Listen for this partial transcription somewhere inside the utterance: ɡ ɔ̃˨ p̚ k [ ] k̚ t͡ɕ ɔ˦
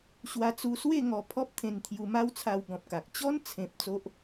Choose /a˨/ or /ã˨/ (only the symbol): a˨